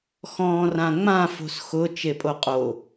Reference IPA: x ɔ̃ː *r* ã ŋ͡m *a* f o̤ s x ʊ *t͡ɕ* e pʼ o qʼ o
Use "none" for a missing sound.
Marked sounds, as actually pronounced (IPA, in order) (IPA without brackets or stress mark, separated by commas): r, ã, t͡ʃ